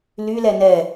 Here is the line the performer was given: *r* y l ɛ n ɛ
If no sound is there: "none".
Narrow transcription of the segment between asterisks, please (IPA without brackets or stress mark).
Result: l